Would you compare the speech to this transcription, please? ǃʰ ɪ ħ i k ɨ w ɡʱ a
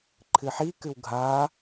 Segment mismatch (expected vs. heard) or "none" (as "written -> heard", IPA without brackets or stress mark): ɪ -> ɨ